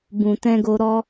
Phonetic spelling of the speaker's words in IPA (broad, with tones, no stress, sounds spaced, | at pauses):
b ũ˨ t ɛ̃˧ ɡ o˧ ɾ ɔ˧